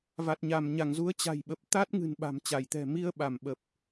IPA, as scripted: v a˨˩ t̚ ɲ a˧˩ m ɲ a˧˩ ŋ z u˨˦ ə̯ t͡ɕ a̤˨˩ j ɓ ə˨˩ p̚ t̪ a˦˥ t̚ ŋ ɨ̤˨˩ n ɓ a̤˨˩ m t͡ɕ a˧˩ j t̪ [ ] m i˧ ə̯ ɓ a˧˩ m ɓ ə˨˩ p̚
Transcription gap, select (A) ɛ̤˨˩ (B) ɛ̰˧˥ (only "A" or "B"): A